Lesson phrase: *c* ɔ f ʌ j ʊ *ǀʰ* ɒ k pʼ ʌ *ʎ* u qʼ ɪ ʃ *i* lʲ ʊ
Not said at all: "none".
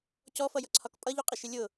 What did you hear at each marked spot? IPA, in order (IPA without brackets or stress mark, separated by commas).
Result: c, ǀʰ, ʎ, ɪ